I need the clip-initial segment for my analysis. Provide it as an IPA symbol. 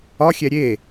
ɒ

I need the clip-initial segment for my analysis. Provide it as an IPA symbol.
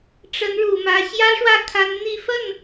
ʈ͡ʂ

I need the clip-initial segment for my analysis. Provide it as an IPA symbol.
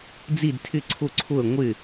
d͡z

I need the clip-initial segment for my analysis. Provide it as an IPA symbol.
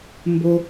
m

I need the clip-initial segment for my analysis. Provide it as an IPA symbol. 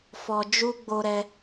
f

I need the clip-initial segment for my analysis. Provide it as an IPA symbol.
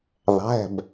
ðˤ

